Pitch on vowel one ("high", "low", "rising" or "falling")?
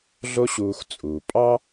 high